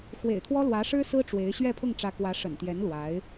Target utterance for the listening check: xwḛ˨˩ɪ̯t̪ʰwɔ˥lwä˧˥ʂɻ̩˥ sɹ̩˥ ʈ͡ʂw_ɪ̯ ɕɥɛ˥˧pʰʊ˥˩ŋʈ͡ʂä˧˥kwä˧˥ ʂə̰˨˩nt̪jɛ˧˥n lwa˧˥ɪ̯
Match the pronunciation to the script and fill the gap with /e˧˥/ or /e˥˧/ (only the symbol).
e˧˥